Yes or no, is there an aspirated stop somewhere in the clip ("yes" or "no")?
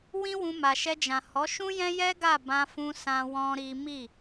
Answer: no